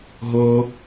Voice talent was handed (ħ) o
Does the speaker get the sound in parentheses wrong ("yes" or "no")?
yes